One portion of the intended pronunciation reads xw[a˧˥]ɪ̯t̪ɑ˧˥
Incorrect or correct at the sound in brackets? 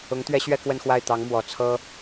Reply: incorrect: a˥˩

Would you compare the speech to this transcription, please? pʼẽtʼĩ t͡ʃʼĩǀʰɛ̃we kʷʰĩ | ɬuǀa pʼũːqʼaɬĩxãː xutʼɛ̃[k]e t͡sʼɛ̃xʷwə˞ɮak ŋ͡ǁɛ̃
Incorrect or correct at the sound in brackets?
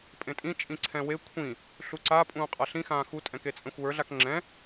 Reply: correct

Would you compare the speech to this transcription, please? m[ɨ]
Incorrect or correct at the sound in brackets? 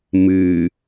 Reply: correct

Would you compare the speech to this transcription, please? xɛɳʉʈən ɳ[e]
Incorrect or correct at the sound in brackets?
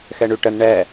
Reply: incorrect: ɛ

